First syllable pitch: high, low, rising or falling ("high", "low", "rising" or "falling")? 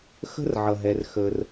high